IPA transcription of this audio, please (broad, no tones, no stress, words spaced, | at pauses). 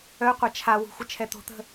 œqʷa t͡ʃʰawṳ xʷət͡ʃʰɛt̪o̤t̪ə̤